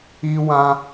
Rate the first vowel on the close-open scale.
close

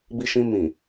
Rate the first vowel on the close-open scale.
close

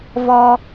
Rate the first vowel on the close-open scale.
mid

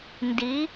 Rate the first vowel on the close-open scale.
close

